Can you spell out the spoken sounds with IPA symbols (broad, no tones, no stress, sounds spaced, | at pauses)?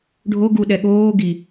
ɖʱ o ɡ u ɗ ɛ ɠ oː ɡ i